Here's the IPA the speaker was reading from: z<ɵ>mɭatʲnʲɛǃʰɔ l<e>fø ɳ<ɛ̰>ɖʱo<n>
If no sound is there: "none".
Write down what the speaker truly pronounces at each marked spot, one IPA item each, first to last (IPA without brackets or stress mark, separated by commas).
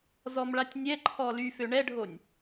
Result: ɔ, y, ɛ, nʲ